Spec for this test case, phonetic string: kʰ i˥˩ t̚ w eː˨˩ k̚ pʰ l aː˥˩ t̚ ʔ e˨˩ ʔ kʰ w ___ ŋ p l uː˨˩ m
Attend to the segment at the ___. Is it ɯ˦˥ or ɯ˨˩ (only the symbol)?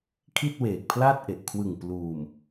ɯ˨˩